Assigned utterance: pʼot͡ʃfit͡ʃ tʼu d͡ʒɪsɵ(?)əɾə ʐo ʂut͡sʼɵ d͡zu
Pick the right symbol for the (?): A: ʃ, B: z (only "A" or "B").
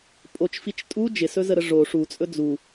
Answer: B